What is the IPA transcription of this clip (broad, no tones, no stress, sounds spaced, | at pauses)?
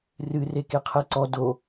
r ɨ r e k e qʰ ɛ ǀ ɔ d o